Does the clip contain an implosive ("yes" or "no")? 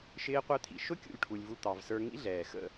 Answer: no